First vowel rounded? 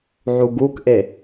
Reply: yes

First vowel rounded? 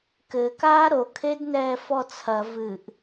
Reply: no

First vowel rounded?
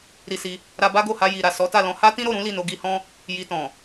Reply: no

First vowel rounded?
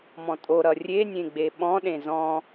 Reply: yes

